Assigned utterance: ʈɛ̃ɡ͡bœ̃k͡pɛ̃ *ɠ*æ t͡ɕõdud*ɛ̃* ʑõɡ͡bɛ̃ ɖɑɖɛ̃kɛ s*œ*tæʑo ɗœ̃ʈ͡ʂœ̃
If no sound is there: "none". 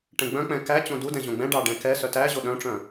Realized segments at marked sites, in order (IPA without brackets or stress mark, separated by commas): k, ɛ̃, œ